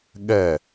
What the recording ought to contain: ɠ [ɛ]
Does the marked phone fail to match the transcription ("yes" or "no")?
no